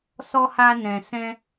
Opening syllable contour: high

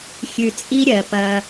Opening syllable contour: low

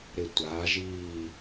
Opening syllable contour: low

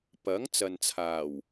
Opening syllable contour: rising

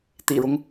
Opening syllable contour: low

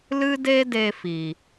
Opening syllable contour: high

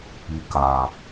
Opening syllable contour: low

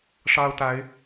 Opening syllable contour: high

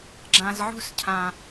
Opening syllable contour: low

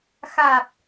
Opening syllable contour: low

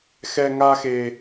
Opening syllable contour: high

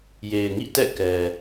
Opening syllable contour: low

